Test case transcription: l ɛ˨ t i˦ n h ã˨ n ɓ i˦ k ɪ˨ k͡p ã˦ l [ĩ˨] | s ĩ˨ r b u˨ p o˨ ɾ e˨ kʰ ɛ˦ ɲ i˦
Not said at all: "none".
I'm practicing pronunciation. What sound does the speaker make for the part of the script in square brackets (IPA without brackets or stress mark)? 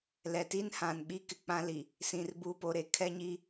i˨